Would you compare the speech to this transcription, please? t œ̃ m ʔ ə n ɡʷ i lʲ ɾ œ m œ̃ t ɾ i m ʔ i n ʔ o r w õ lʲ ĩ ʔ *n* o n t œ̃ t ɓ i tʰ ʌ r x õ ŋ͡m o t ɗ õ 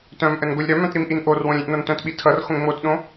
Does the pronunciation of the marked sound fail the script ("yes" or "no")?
no